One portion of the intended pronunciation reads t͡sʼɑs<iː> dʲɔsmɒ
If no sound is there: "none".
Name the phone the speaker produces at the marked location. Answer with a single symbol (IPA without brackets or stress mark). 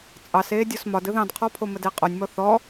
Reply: eː